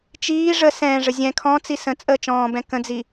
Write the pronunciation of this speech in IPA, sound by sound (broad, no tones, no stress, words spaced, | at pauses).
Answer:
t͡ʃiː ʐə sɛ̃ːʐə zʲɛ̃ kʰɔ̃t͡si sə̃ t͡sʼəːt͡ʃɔ̃ːbɛ̃ kə̃d͡zi